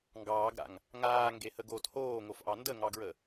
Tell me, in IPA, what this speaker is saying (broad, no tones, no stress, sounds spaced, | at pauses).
ŋ ɡ ɑː ɡ ɾ a̰ ŋ | ŋ aː ŋ ɡ e h ə ɡ oː t h oː ŋ o f ʔ ɑ n d ə ŋ ɑ ɡ ɹ ə